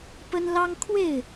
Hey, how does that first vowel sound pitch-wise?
high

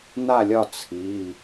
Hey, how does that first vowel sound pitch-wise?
falling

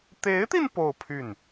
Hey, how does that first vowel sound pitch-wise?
rising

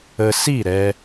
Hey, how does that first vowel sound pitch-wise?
low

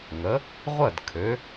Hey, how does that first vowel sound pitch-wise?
rising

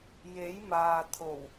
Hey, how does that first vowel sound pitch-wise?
rising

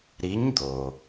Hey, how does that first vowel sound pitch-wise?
rising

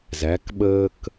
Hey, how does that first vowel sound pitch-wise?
rising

